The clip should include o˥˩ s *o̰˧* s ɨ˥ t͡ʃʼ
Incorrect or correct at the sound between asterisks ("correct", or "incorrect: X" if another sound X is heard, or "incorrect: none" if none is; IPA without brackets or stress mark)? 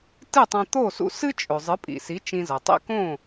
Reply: incorrect: ṵ˧